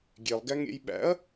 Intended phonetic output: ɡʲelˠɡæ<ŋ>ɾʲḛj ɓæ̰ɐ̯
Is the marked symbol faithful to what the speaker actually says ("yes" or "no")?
yes